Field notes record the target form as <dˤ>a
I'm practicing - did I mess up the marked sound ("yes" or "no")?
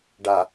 yes